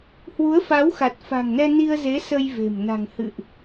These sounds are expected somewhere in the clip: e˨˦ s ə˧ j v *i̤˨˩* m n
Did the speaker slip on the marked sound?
yes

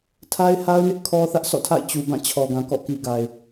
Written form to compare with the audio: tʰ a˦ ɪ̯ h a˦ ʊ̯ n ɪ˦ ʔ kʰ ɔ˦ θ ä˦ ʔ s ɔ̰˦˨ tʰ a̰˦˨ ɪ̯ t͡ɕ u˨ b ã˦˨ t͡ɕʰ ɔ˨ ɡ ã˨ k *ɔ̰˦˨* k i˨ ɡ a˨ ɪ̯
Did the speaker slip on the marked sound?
no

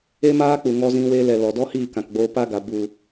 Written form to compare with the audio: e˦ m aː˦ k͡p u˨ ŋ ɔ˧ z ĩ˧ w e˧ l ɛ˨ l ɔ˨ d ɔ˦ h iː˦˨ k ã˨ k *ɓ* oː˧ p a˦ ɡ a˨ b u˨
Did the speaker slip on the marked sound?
yes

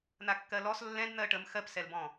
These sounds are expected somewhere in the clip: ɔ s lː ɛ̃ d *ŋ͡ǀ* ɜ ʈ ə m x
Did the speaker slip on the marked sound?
yes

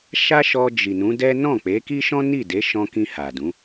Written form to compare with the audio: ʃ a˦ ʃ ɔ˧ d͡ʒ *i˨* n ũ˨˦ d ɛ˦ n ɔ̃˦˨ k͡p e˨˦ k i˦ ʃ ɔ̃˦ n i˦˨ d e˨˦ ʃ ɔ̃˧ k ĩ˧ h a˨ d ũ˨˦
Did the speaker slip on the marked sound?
no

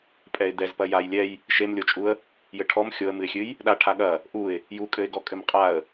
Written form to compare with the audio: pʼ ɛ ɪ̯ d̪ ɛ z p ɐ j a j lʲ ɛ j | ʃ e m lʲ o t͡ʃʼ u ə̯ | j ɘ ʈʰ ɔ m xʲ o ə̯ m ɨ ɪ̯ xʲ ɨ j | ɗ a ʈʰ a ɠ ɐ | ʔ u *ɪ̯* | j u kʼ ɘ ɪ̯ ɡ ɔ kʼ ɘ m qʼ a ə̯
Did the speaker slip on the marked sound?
no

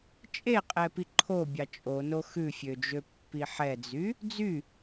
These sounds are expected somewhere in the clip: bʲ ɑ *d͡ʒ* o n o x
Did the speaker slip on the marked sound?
yes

